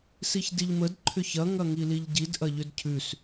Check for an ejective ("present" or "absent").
absent